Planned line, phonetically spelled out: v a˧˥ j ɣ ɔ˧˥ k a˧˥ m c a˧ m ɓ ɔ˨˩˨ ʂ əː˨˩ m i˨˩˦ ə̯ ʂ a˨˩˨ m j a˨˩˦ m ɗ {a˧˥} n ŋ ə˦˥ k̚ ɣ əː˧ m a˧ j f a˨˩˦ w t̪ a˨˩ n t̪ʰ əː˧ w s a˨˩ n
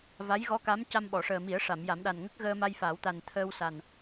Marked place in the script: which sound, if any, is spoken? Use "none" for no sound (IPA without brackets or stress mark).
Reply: a˨˩